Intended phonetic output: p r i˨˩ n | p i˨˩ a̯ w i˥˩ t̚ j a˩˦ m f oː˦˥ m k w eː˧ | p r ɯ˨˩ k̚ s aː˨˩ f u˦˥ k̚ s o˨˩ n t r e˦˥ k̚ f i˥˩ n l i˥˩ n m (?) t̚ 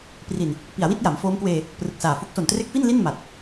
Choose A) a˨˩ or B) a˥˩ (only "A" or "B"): A